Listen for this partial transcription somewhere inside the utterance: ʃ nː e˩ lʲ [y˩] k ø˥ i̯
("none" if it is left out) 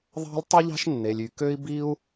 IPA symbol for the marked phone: y˩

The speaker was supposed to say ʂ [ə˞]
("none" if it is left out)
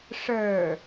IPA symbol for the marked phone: ə˞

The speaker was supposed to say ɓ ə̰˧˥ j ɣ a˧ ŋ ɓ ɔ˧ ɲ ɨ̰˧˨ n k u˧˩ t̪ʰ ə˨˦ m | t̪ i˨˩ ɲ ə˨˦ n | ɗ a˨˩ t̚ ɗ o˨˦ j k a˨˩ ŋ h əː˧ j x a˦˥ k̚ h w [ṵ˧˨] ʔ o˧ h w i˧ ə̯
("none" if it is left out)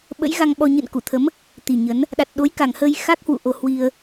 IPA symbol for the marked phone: ṵ˧˨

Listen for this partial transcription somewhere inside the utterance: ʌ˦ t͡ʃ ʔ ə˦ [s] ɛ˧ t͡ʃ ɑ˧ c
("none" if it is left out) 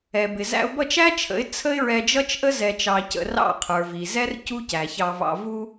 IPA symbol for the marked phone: z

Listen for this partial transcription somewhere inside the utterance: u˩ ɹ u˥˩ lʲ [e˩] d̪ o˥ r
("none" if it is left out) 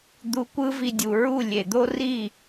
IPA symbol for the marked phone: e˩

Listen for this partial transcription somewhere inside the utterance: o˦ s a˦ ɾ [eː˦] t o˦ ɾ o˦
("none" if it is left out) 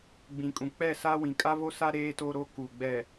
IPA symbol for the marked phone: eː˦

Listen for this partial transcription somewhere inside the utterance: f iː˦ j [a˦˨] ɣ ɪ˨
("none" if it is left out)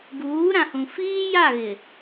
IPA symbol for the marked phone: a˦˨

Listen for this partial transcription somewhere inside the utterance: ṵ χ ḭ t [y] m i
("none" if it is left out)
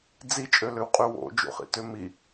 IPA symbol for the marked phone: ø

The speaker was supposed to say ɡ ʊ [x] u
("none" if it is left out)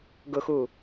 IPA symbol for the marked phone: x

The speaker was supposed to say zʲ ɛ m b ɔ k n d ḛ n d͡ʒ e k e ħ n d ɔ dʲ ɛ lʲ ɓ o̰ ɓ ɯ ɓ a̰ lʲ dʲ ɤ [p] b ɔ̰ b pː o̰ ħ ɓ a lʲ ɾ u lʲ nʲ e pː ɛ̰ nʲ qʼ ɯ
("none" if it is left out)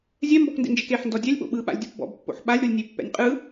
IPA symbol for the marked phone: p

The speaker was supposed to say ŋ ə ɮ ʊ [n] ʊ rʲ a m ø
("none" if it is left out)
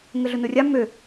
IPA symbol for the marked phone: n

